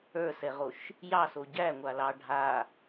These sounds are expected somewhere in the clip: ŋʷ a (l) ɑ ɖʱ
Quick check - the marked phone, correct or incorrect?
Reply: correct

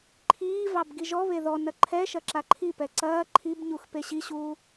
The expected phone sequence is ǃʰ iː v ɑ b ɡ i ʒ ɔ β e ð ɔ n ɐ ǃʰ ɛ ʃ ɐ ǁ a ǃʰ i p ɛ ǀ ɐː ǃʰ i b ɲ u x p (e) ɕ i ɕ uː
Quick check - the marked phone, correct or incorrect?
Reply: correct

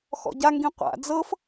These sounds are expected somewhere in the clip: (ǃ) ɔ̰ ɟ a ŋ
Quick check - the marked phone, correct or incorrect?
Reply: incorrect: x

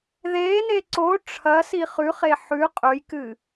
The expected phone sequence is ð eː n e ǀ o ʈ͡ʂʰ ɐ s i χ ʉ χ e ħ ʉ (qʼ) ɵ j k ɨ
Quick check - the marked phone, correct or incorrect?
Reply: correct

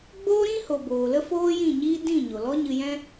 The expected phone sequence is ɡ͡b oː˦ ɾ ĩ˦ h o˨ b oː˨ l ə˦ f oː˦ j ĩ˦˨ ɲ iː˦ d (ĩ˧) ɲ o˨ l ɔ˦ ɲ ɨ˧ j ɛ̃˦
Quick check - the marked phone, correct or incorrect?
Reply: incorrect: ĩ˦˨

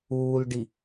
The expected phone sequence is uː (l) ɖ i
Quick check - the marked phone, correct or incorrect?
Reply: correct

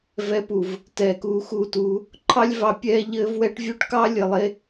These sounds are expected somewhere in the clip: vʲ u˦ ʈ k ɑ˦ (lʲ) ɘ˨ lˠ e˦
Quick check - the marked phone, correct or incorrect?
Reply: correct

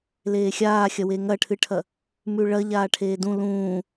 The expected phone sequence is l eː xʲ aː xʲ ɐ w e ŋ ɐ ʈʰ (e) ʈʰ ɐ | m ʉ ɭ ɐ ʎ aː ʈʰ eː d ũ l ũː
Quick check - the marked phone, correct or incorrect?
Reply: incorrect: ɨ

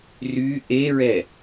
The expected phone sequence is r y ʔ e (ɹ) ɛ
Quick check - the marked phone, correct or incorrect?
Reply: correct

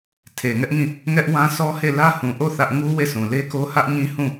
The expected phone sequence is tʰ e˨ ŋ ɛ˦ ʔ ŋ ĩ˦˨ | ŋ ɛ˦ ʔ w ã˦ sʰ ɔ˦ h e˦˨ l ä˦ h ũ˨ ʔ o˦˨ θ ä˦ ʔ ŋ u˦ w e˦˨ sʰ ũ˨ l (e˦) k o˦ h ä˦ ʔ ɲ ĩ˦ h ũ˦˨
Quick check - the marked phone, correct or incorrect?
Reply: correct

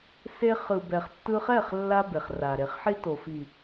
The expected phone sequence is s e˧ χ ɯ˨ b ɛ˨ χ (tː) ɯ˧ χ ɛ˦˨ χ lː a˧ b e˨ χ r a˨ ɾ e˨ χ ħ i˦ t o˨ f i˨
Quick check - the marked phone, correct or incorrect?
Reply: correct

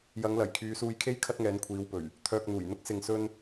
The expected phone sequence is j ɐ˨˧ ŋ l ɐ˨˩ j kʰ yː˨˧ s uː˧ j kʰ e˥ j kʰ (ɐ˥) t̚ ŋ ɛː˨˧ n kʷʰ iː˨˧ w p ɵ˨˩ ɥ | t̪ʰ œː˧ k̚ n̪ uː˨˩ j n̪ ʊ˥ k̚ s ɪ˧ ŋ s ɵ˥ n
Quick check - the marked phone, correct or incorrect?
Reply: correct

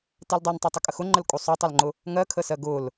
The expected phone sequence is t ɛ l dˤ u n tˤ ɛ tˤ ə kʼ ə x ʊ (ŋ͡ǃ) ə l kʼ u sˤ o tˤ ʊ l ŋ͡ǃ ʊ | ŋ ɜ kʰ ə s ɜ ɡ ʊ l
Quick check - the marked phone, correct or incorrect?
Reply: correct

